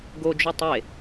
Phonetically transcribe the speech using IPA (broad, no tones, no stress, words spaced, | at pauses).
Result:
ɡod͡ʒu tˤe